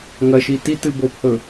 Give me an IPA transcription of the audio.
ŋɐʃi titɨ bophɵ

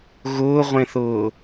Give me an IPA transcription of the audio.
ɣʊːʁʷẽθʊː

